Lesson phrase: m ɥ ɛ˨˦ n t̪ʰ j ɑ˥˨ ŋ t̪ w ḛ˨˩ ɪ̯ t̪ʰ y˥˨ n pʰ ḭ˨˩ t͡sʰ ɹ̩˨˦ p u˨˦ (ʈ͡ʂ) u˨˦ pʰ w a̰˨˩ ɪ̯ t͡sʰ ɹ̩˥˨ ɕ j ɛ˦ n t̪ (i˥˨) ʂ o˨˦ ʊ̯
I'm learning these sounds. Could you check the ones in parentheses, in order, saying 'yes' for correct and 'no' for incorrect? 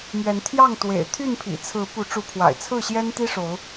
yes, no

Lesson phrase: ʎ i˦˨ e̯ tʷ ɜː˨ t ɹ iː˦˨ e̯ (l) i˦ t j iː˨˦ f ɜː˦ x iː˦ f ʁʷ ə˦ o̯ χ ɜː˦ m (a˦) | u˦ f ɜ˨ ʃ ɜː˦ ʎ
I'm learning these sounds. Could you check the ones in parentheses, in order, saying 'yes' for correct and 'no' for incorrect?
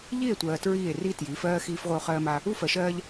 no, yes

